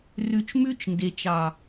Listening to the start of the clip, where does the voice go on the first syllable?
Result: low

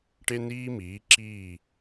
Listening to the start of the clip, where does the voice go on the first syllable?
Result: high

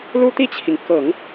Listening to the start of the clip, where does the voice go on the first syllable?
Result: high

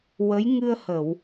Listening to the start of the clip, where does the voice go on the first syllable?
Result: rising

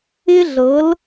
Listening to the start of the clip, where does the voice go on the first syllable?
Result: high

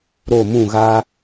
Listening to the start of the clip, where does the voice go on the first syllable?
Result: falling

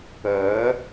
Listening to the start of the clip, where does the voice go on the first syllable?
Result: rising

